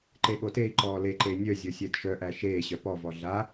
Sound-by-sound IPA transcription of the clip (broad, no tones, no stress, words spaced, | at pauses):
ǃeɠotei̯ǃɔː leǃe nʲœzʲo sʲɛdʃœʔæ ʃeːɕœ pɔvɔ ɮa